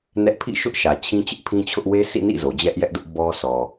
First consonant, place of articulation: alveolar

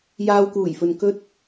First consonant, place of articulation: palatal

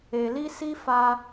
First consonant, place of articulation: alveolar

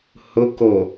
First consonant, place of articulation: glottal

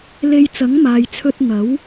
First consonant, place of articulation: alveolar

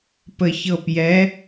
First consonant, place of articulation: labial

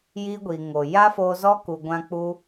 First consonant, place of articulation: palatal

